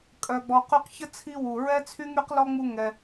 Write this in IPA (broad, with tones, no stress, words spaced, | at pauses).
kʼœ˨ɡ͡bɔ˨qy˦q çə˥t͡sʰi˦ wu˩ɹɛ˥t͡sʰy˥ŋy˥q lɔ˥ŋ͡mu˦ŋɛ˨